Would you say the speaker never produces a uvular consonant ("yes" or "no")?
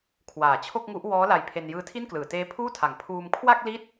yes